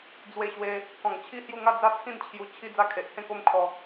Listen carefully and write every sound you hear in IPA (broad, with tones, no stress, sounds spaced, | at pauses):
d͡z w e˧ ɕ w e˧ | k ɔ̃˨˩ ŋ t͡ɕʰ i˥˧ h j u˥˧ ŋ a˥˧ d͡z a˦ t͡sʰ ĩ˥˧ n t͡ɕʰ j u˧ t͡ɕʰ i˦ d͡z a˦ kʰ e˨ ʔ h ẽ˥˧ k o˦ m kʰ ɔ˧